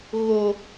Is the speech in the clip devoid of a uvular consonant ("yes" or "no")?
yes